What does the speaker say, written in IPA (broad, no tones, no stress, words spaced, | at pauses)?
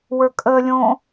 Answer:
wə˞kʼəlʲõ